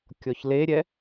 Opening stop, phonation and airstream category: plain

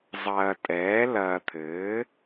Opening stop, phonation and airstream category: ejective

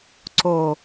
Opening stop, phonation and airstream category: click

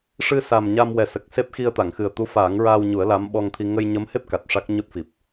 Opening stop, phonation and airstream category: plain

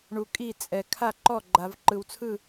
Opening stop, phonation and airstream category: ejective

